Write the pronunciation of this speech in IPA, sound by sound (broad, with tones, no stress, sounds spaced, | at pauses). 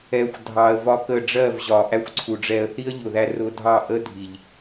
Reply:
ɛ˦ xʷ dʱ ɑ˧ ə̯ v ɒ˦ k ə˦˨ ɖ͡ʐ ɜ˦˨ v ʑ ɒ˨ ʔ æ˦ xʷ ǀʰ u˨ ɖ͡ʐ ɛ˧ ə̯ θ i˦ ə̯ ʎ ʊ˨ ð æ˧ r ʊ˧ dʱ ɑ˦˨ ʔ ə˦ dʱ i˨ ʎ